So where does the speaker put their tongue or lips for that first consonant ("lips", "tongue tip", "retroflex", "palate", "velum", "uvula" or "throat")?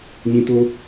palate